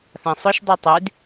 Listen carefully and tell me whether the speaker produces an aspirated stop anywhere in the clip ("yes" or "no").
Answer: no